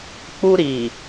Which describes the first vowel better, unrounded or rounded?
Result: rounded